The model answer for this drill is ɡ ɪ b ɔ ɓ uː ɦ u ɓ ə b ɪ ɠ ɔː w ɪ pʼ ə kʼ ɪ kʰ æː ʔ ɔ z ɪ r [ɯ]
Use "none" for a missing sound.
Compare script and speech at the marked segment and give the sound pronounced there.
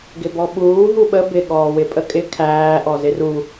u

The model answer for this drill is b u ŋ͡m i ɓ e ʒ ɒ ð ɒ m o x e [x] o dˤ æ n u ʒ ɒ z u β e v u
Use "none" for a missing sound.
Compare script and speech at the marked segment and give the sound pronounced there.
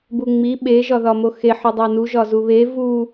ħ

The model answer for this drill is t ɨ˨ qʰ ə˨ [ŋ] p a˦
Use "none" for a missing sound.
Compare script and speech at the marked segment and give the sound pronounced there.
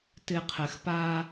x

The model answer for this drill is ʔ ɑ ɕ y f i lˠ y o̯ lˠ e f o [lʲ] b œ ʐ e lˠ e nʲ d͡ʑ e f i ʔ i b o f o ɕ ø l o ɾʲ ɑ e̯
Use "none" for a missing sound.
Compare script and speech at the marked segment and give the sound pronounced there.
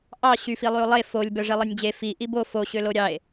lʲ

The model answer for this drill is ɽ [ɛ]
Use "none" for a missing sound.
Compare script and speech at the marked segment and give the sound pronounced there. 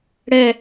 ɛ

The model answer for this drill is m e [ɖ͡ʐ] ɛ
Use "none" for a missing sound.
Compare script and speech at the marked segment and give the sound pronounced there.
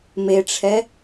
ʈ͡ʂʰ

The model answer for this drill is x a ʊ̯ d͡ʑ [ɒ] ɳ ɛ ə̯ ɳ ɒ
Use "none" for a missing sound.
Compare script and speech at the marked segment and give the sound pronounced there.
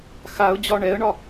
ɒ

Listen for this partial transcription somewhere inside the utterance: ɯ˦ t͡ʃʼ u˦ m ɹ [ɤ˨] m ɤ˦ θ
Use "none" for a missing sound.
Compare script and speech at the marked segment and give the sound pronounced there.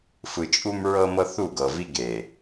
ɤ˦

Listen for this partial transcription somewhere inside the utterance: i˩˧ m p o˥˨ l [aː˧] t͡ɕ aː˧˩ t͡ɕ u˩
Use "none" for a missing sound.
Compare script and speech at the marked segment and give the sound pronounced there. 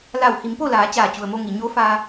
aː˩˧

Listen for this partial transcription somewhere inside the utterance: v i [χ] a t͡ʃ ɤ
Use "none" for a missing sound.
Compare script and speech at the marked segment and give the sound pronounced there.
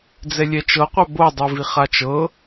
χ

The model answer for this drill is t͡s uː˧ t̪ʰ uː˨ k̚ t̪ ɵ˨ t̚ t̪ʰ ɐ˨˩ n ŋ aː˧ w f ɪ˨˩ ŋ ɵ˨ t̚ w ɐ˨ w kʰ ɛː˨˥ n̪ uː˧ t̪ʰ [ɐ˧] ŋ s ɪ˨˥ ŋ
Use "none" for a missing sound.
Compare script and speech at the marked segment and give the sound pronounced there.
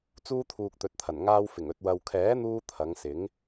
ɐ˨˧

